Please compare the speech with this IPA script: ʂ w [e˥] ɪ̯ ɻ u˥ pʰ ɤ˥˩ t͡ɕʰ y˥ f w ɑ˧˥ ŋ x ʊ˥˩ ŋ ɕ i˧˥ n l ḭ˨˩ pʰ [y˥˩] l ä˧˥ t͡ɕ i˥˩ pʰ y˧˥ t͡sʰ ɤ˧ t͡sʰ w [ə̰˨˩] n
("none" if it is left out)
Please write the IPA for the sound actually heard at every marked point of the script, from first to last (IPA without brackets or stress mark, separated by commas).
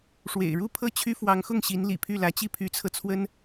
ḛ˨˩, y˥˩, ə˥